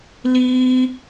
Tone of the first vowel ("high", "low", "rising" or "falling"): high